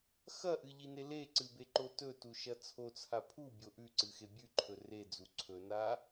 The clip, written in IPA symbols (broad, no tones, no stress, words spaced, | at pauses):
xɐʔɨʎine leǀɨbeǃo tɵtuʃɐ t͡sʰot͡sʰa pʰubʲo ʔʉǀɨxe bʲʉǃʰɵ red͡zu ǀʰɵna